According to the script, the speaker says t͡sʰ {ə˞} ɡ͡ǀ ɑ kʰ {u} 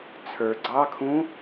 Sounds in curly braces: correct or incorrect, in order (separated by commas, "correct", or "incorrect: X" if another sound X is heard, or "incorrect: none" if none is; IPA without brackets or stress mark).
correct, incorrect: ũ